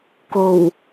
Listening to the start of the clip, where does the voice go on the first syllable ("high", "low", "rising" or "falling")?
low